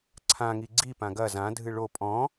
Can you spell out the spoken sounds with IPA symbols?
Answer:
ǀʰ ã ŋ i ɡ͡ǀ i p ã ɡ ɐ z ã dʱ ɨ ɭ o pʼ ɔ̃

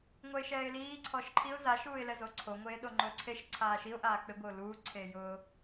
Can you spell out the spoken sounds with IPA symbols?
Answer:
ŋʷ ɛ ɪ̯ ʃ ɛː ɪ̯ l iː ǀʰ ɔ ʃ ǃʰ i ʊ̯ z a ʃ uː ɪ̯ l ɛ z o ǀʰ o ŋʷ eː ɗ o ŋ͡ǃ ʊː ǀʰ e ʃ ǀʰ aː ʃ i ʊ̯ ʔ aː k͡p ɪ ɡʷ ɪ ʊ̯ l uː ǀʰ eː j ʊː

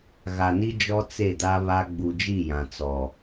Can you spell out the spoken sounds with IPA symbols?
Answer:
ɣ a˨ n i˦ d͡ʒ ɔ˦ t͡s e˦˨ d a˦ β a˦ ɡ͡b u˨ d͡ʒ i˦˨ j ã˨ t͡s ɔ˨

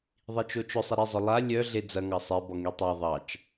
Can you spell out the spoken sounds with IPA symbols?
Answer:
ðˤ i t͡ʃ o t͡ʃ ʊ sˤ e ɾ e zˤ ʊ lˠ a lʲ œ ɮ e d͡z ɐ ŋ ɑ sˤ e b ɔ ŋ i tˤ a ðˤ ɑ t͡ʃ

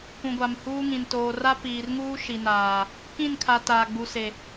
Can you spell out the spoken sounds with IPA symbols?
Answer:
k ũ˨ ɡʷ a˨ m h uː˦ ŋ ĩ˨ n t oː˨ r a˦ p iː˨ r ŋ uː˦ ʃ i˨ n aː˨ | k ĩ˦˨ n kʰ a˨ t aː˨ ɡ͡b u˨ s e˨

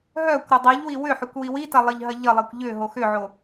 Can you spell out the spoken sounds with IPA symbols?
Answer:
ɦ œ kʷ ɾ ə dˤ i ʎ w i w ʏ ħ ʏ kʷ w i w i t ɐ lˠ ə ʎ ɦ ɐ ʎ ə lˠ i kʷ ʎ ʏ ɦ o x ʏ ʕ o

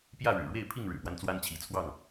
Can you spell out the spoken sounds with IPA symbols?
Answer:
p j ä˥˨ ɻ ɻ̩˨˩ ɻ w e˥˨ ɪ̯ pʰ i˥˨ ŋ ɻ ɻ̩˨˩ p w a˦ n t͡s w a˦ n t͡ɕʰ i˨˦ t͡sʰ w ɑ˥˨ ŋ

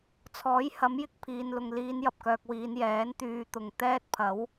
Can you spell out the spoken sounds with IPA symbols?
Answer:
t͡sʰ ɔː˨˥ j h ɐ˨˥ m j ɪ˧ k̚ pʰ iː˨ n l ʊ˨ ŋ l iː˨˧ n j ɐ˨ p̚ k œː˧ k̚ w iː˨˧ n j ɛː˨˥ n t̪ yː˧ t̪ ʊ˨ ŋ t̪ ɛː˥ t̚ pʰ ɐ˨˥ w

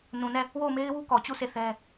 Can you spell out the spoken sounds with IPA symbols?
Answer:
n ũ˨ n ɛ˦˨ | w o˦˨ ʊ̯ m e˦ ɪ̯ w u˦ k ɔ˨ t͡ɕ u˦˨ s e˦˨ θ ɛ˦

